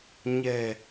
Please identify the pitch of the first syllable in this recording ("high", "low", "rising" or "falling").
low